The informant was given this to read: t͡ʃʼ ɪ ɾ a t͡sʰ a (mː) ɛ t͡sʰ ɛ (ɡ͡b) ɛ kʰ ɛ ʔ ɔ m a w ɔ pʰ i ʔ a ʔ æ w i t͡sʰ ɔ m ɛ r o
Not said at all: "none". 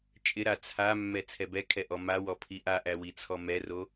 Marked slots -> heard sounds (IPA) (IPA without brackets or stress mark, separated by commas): mː, b